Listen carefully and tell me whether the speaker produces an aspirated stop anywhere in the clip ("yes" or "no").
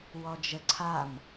yes